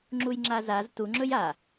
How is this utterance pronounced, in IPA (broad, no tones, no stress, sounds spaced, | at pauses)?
ŋ͡ǁ u j ŋ͡ǁ a z a z t u ŋ͡ǁ ɵ j a